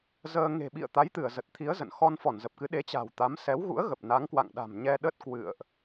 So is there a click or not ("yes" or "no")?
no